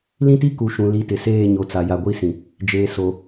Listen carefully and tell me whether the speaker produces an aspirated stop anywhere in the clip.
no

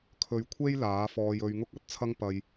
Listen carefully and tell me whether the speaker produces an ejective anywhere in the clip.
no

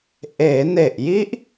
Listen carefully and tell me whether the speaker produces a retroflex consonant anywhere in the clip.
no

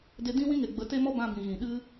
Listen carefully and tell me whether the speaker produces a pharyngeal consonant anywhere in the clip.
no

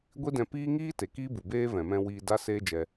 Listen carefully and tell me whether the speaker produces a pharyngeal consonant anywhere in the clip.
no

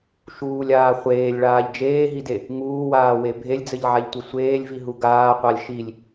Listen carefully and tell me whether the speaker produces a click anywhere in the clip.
no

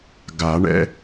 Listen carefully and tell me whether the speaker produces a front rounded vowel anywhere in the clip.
no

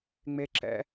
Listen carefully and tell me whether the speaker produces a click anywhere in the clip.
yes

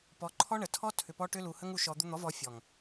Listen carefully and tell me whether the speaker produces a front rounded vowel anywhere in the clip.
yes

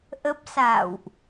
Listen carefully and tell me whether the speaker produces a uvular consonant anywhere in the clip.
no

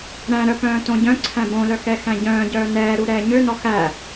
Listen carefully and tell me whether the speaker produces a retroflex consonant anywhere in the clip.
no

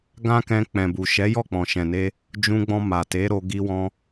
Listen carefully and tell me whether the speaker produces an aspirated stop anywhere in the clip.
no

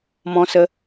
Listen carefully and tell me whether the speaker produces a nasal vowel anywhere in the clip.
yes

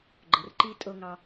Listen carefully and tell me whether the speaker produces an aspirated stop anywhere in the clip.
no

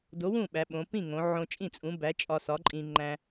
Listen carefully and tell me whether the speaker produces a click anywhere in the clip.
yes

